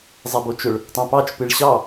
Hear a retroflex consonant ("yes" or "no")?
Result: yes